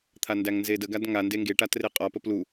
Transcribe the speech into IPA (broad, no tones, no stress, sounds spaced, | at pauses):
t̪ʰ a n d æ ŋ n z e d ə ɡ a d ŋ a n d e ŋ ɡ e ʈ a t r e qʼ ɒ p ə p l u